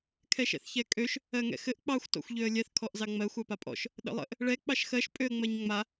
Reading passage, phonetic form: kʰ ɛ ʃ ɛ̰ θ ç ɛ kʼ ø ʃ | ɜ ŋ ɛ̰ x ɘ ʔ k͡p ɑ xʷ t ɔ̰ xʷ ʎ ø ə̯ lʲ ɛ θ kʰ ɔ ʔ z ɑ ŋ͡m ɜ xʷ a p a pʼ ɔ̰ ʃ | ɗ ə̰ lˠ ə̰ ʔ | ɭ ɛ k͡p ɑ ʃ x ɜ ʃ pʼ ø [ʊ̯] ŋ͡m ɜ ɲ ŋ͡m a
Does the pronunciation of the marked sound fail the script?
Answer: yes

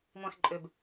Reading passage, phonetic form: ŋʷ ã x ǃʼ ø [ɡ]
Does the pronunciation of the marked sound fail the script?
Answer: yes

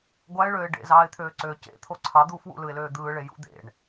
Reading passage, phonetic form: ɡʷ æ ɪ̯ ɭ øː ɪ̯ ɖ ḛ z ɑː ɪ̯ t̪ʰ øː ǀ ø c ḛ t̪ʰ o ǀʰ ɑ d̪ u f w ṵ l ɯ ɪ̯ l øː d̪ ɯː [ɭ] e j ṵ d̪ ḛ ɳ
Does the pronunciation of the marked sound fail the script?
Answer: no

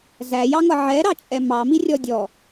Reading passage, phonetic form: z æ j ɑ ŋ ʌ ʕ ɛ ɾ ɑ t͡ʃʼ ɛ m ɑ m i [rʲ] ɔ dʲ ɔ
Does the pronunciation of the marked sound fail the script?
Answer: no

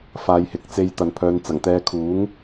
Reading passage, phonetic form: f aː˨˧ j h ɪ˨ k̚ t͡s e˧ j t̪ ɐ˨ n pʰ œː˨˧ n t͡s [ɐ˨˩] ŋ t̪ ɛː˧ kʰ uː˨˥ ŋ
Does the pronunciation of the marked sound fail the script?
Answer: no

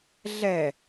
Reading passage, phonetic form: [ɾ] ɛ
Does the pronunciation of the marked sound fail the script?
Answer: yes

